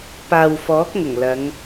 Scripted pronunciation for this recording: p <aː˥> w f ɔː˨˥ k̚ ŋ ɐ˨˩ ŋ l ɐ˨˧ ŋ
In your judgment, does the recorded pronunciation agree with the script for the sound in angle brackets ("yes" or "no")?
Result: no